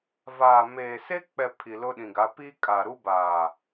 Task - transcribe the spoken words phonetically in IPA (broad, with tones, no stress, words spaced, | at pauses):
vaː˨meː˨ se˦k͡pɛ˨ pʰi˨lʊ˦ɗĩ˨ɡa˨˦ pi˦kʼa˨ɾu˦baː˨